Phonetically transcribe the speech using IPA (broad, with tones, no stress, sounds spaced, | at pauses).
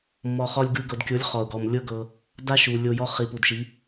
mː ɔ˨ χ ɔ˧ lʲ ɡ ɯ˧ ɡ ɤ˨ d kʲ o˨˦ lʲ χ ɔ˨ ʊ̯ ɡ ɔ˨ m lʲ ɤ˦ ɡ ɤ˧ | d a˦ ʃ u˨ lʲ o˧ j ɔ˦ χ i˨ p u˨ d ʃ i˨˦